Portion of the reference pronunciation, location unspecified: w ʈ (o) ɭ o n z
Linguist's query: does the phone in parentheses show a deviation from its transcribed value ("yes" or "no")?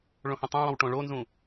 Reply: yes